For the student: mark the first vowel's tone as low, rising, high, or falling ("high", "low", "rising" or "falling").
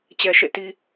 high